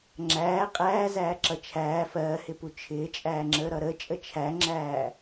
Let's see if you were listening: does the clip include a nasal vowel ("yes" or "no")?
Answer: no